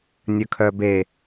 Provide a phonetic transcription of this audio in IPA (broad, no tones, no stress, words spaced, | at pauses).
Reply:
nʲɵkʰœbe